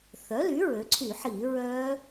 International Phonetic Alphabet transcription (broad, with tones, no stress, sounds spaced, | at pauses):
θ œ˩˥ l y˩˥ ɹ ø˩˧ ǀʰ y˧˩˧ ħ i˧˩˧ ɹ œ˦˥